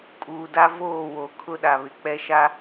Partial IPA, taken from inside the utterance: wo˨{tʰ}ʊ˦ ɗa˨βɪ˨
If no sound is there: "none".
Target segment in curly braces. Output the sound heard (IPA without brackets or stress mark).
kʰ